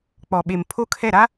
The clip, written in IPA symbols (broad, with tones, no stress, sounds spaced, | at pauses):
k͡p ɔ˨ ɓ e˨ m pʰ o˦ kʰ ɛ˦˨ ɾ a˦